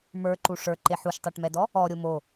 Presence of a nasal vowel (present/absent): absent